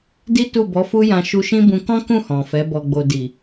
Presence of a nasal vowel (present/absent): present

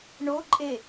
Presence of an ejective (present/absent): present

